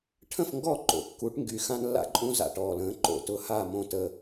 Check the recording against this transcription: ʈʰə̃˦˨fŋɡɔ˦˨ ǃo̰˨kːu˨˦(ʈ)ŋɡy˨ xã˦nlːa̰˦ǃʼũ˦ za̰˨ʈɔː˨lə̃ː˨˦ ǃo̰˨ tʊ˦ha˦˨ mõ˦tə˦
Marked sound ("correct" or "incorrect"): correct